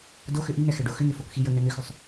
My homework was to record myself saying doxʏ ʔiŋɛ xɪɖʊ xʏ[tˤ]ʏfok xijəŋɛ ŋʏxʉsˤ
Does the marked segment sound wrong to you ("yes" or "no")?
yes